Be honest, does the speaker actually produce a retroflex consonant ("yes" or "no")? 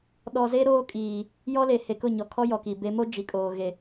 no